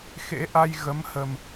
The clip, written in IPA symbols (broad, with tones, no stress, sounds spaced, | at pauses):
x ḛ˧˥ ʔ a˧ j ɣ ə˨˦ m h ə˨˩ m